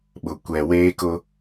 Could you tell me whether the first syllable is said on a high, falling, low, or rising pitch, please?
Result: low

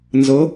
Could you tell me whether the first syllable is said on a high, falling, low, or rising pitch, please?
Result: rising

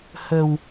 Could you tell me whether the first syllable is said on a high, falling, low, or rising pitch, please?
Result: low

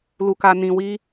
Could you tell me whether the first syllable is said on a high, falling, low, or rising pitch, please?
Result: high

